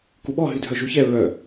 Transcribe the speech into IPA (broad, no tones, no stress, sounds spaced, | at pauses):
k u ɓ ɔ ɦ y dʱ œ ʒ u ç ɛ ɹ œ